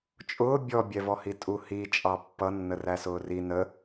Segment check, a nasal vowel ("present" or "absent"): absent